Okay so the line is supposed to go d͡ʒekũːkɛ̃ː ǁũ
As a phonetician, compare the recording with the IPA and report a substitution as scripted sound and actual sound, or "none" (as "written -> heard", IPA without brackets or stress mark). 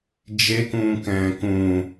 ǁ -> k